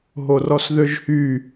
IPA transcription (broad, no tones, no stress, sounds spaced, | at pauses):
ɦ o r ɔ s ð ø ʒ h y